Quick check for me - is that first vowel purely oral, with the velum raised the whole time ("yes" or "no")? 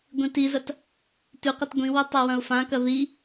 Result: no